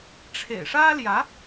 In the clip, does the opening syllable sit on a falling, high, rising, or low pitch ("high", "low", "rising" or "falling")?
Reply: low